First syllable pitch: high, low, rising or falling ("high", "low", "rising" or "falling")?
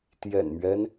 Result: low